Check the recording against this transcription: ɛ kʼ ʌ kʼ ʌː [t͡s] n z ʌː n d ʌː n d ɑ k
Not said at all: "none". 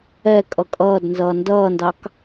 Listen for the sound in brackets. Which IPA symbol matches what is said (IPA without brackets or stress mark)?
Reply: d